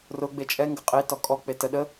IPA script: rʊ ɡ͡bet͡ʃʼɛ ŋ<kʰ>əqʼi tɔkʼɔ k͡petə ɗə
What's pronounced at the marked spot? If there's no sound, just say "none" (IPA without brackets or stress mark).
ɡ